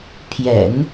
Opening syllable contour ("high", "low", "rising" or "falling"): low